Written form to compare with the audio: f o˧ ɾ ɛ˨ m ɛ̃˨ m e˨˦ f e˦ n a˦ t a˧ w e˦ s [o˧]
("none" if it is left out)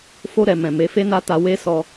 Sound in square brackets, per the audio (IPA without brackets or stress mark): ɔ˧